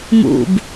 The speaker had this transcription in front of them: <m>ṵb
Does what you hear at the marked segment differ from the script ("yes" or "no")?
no